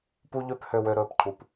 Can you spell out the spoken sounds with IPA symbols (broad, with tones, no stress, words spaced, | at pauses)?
pu˦ʎø˦p hø˨wø˨ɾɵː˩p cʰu˩p